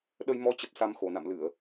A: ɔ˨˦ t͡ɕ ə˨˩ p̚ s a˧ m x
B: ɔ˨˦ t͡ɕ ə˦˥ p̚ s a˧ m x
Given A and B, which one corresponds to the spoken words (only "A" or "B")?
A